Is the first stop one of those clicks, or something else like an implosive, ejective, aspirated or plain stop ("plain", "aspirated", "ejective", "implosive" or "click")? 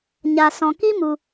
plain